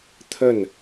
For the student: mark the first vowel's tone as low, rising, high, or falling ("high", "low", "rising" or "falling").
falling